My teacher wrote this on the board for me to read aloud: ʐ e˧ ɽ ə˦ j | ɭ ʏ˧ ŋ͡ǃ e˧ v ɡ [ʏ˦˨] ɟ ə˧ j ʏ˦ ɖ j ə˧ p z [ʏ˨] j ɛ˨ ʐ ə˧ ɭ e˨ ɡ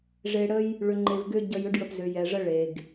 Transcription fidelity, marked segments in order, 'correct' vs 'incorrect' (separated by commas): incorrect, correct